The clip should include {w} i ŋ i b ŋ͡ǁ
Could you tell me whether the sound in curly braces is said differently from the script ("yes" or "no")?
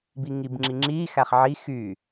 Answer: yes